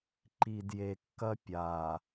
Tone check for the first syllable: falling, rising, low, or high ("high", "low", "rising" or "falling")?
low